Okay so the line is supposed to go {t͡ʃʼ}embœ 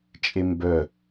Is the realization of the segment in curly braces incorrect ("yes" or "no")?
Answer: no